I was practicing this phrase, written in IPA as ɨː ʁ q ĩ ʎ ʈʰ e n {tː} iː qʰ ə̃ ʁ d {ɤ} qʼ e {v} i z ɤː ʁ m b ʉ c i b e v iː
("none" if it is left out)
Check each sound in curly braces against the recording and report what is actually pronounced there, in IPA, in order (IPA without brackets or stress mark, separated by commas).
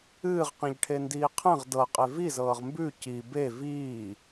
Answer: d, ɤ, v